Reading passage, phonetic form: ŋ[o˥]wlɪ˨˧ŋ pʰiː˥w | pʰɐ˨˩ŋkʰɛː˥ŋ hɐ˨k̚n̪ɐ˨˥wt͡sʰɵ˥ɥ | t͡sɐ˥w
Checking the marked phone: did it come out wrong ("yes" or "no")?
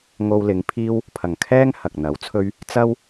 yes